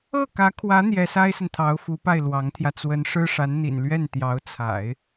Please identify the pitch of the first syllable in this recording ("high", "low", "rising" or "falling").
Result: falling